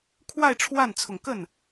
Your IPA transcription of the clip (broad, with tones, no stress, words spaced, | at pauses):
kʰwa˥˧ɪ̯ʈ͡ʂʰwa˥˩nt͡sʰʊ˨˩ŋkə˥˩n